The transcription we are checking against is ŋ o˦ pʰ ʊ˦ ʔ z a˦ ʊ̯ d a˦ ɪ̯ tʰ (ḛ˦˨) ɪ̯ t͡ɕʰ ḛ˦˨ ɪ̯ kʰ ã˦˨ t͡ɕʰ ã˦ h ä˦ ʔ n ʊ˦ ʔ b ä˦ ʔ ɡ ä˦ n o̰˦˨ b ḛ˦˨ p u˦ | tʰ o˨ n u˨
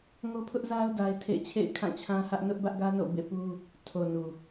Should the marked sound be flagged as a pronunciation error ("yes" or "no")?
no